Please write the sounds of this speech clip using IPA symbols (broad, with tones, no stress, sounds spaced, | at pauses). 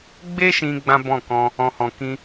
ɡ͡b e˦ ʃ ĩ˧ ɡ͡b ã˦ b ɔ̃˦˨ k ɔ̃˧ | ɔ̃˨ h ɔ̃˨ k ĩ˧